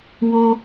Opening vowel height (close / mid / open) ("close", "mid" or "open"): mid